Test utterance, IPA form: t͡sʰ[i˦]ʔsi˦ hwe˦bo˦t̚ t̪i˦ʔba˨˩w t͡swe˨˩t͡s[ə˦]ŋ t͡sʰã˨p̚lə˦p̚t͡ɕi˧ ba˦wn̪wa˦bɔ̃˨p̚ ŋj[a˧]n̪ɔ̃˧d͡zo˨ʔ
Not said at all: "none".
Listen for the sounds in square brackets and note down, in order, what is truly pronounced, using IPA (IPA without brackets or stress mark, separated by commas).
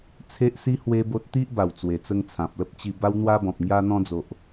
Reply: e˦, ə˧, a˧